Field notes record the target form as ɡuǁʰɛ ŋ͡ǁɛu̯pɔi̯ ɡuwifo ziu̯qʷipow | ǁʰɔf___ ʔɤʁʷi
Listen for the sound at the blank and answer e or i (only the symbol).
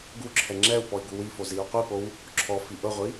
i